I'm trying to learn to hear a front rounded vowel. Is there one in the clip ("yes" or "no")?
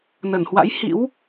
no